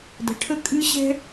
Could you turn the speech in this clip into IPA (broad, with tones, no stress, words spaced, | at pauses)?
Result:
də̤˨˦ʈʰə˦kʼɨ˦ɕɛ̤˦